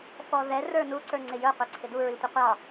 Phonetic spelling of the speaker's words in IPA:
f ɔ ð ɛ r ə˞ n u ǀ ə˞ ŋ͡ǀ ɪ j ə˞ qʷ ɛ ǀʰ ɪ d u ɹ i tʷ i qʷ ɑ

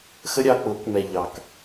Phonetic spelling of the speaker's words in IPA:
x ə˦ ɾʲ ɑ˧ k͡p ʊː˨˦ k m ɛ˨ ʎ ɑ˨ k

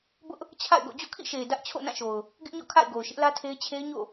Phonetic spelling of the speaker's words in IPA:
b ʊ˦ ʔ | t͡ɕʰ a̰˦˨ ɪ̯ ɡ o̰˦˨ d͡ʑ o̰˦˨ kʰ ḭ˦˨ ʃ e˨ ɪ̯ d ä˦ ʔ t͡ɕʰ o̰˦˨ n ã˦˨ ʃ o˨ ʊ̯ | ɡ ɪ˦ ʔ ɲ ɔ̰˦˨ kʰ a̰˦˨ ɪ̯ ɡ o˨ ʊ̯ ʃ ɪ˦ ʔ l ä˦ tʰ e˦ ɪ̯ t͡ɕʰ e˦ ɪ̯ ɲ o̰˦˨

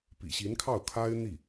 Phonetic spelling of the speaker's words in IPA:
p ḭ˨˩ ɕ i˧˥ n kʰ ɑ˥˩ ʊ̯ kʰ a˥ ɪ̯ n̪ i˥˩

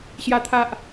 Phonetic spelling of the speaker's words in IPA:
ɕ j a˦ t̪ʰ a˦ ʔ

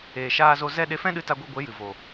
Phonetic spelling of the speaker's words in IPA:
eː˨ ʃ aː˧ z o˧ z ɛ˦ ɗ e˧ f ɛ̃˦ ɗ ɨ˧ t a˧ ɡʷ i˧ ɡʷ e˨˦ j ɨ˨ v o˨

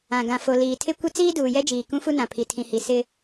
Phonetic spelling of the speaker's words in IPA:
ã˨ ɡ ã˨ f o˨ l iː˨ tʰ ɪ˦ kʷ ɪ˦ t͡s iː˦ d uː˨ j ɛ˦ d͡ʒ iː˨ k ũ˦ f u˦ n ã˨ pʰ i˨ tʰ ĩ˨ h i˨ s ɪ˦

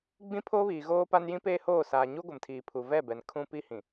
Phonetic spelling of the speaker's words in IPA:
ɡ͡b ĩ˦ pʰ oː˦ β iː˨ ɣ oː˦ p a˦ n j ĩ˦ p eː˦ h oː˦˨ s aː˨ ɲ u˦ ɡʷ ɪ˨ m tʰ iː˨ pʰ u˨ v ɛ˦˨ b ɛ˨ n kʰ ũ˦ p i˦ h ĩ˨

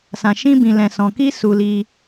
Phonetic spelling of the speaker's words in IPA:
s ã˧ ʃ ĩ˦ b ĩ˧ l ɛ̃˧ s ɔ̃˧ k i˦ s u˧ l i˧

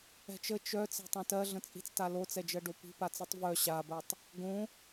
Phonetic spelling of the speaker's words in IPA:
ɛ̤ t͡ʃ ə t͡ʃ œ t͡s ɛ̤ tˤ œ̃ t ɜ ɮ ə̃ t͡sʼ i̤ t͡s t a l o t͡s ɛ d͡ʒ ɜ ɖ o p i̤ p a t͡s i tˤ v œ ɕ a b ɜ tˤ | ɡ õ

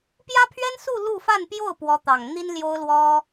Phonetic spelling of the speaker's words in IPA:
p j ä˥ pʰ ɥ ɛ˥ n s u˥˧ l u˥˧ f a˥˧ n p j o˥˩ ʊ̯ p w ɔ˧˥ t̪ ɑ˨˩ ŋ n̪ i˥ n l j o˥ ʊ̯ l w ɔ˥

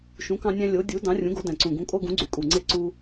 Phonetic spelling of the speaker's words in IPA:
ʃ ũ˨˥ k ɑ̃˦ nʲ æ̃˦ lʲ o˨˥ dʲ u˨˥ d ɑ̃˨˥ rʲ ũ˨˥ ɡ o˨˥ d æ̃˨˩ ǀ ũ˨˩ ɡ ũ˨˥ kʼ o˦ ɡ ũ˨˥ ɡ͡ǀ y˨˩ kʼ u˨˩ ŋ͡ǀ e˦ ǀ u˦

